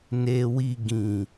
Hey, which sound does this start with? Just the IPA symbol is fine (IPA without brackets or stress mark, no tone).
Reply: n